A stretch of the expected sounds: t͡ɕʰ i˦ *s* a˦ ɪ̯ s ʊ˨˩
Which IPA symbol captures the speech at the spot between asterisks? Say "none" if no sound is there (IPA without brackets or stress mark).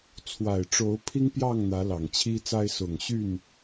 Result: t͡s